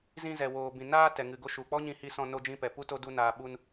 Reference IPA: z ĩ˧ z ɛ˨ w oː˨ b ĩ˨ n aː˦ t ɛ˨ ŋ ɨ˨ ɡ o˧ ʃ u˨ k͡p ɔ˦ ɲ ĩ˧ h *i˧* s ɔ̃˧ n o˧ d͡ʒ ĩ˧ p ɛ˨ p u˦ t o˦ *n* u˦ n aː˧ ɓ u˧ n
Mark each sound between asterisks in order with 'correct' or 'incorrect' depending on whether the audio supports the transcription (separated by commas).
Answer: correct, incorrect